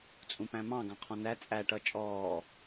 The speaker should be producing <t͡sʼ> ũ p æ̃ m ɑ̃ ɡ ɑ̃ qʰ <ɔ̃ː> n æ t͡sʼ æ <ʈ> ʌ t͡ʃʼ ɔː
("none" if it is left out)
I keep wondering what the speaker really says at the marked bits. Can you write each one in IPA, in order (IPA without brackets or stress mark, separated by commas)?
t͡sʼ, ɔ̃, ʈ